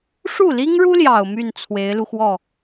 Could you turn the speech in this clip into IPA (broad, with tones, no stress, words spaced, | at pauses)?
ʂu˥˩li˥ŋɻu˥ljɑ˨˩ʊ̯ my˥˩n t͡sʰwe˧˥ɪ̯lu˧xwɔ˥˩